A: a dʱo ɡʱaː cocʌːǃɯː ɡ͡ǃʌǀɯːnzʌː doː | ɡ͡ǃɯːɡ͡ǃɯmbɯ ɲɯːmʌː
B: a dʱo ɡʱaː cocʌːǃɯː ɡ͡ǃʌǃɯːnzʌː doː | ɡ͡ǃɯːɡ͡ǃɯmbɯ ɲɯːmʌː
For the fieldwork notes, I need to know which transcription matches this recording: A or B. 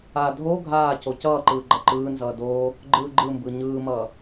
B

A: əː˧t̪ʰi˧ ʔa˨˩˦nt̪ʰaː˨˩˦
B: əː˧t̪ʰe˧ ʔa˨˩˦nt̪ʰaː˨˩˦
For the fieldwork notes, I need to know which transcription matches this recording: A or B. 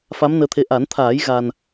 B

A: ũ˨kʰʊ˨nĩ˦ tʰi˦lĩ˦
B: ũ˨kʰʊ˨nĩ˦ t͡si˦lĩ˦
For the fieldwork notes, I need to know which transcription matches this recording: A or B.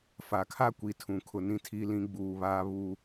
A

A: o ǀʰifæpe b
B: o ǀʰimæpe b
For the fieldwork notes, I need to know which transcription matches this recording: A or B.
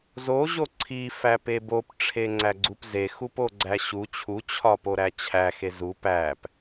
A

